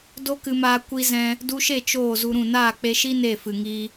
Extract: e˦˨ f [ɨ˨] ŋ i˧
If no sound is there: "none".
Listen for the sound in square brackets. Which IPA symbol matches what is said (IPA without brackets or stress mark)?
ɨ˨